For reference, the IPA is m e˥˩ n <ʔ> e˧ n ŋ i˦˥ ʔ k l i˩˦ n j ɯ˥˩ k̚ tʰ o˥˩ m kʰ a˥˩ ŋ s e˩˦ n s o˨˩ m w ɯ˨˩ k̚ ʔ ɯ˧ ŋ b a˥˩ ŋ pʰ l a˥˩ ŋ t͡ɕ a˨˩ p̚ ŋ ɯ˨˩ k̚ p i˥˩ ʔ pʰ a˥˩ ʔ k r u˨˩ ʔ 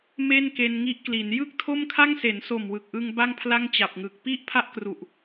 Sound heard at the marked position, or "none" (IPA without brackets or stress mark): k